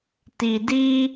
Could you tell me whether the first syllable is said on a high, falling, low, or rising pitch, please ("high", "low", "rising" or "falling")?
low